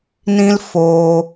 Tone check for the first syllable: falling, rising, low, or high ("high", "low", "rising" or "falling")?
high